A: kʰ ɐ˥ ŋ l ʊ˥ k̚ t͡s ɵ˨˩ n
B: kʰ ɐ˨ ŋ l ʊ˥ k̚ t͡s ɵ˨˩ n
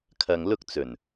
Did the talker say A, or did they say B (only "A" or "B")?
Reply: B